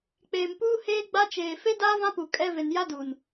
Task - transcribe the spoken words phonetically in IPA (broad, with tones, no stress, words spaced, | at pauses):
k͡peː˨mpuː˦ heː˦ɡ͡ba˦ t͡ʃeː˨ fe˦daː˦vã˦pu˨ kʼɛ˦ve˨n ja˦du˨n